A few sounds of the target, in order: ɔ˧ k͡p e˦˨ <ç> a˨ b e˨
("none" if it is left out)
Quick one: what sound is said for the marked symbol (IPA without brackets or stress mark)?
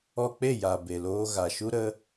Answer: j